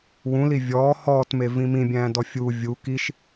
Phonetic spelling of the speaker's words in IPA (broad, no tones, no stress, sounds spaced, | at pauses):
w ũ l i vʲ ɔː h ɔː t m e v ĩ m ĩ bʲ æ̃ː d ɔ fʲ u vʲ u k i ʃ